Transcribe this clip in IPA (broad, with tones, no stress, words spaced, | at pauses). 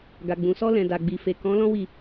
ɡa˨ɡ͡bũ˨sɔ˧ lɛ̃˨da˨ɡ͡bi˨fe˨ kɔ̃˨˦lɔ̃˦wi˦˨